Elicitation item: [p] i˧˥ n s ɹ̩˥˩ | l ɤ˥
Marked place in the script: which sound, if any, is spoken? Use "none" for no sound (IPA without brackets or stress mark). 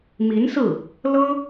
m